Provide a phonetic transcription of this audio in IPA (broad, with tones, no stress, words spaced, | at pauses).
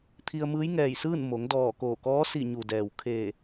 t̪ʰi˧ə̯ mɯː˧˥jŋɛː˧˩jsɯː˥˨n mo˩˧ŋ dɔː˧˩koː˧˩kɔː˧˥ si˧˩ɲu˩dɛː˩w kʰeː˧˩